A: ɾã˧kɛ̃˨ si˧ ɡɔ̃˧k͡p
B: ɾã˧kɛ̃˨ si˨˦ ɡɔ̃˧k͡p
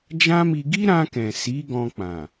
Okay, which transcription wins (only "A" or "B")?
B